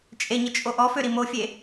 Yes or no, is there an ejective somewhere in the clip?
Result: yes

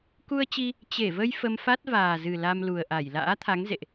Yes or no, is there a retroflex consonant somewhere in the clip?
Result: no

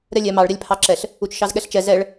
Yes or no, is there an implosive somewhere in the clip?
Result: yes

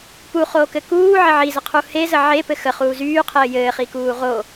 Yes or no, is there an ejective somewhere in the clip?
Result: no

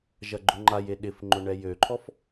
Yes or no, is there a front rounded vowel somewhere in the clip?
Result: yes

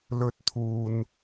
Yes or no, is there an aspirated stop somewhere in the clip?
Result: yes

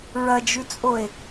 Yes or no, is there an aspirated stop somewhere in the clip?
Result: no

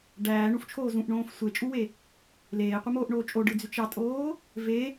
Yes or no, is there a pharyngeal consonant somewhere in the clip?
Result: no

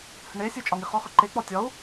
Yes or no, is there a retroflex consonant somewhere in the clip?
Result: yes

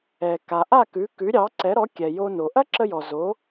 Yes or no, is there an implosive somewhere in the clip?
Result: no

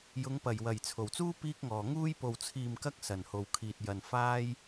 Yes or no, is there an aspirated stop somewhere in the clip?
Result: yes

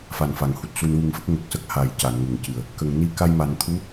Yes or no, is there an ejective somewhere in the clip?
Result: no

